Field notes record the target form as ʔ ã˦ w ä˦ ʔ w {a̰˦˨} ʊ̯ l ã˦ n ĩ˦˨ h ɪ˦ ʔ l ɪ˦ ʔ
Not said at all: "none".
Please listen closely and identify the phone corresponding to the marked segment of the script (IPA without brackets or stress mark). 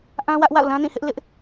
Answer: a̰˦˨